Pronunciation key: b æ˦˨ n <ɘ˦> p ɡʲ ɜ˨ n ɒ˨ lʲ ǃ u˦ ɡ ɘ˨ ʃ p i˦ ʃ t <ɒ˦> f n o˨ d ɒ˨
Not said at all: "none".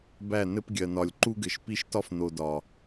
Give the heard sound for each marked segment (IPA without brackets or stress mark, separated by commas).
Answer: ɘ˦, ɒ˦